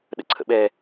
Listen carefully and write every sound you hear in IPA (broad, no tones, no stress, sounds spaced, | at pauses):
ɗ ə̰ ǀʰ ə̰ ɓ ɛ